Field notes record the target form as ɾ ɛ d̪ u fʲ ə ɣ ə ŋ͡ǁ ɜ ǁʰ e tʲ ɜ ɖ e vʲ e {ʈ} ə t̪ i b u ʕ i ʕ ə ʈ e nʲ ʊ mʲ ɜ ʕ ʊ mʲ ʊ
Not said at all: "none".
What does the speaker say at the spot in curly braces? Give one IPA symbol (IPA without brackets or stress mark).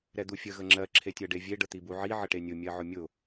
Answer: ɖ